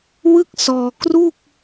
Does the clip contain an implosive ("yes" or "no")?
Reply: no